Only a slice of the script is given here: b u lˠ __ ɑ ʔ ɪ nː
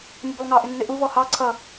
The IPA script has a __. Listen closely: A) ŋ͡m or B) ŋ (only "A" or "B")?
B